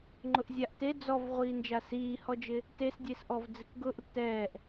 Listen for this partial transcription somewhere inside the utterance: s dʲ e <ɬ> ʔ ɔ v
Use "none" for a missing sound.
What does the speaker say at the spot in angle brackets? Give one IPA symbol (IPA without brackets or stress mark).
s